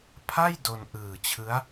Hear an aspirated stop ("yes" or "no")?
yes